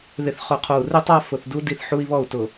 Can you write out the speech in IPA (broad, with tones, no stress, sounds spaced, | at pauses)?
ð ɪ˨ θ χ ʊ˨˦ qʰ o˨ u̯ r ɪ˦ tˤ a˦ f ʊ˨ θ d u˦ d i˦˨ θ ħ u˦ i̯ β ɔ˦˨ u̯ t ʊ˨